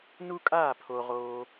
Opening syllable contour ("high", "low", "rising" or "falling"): high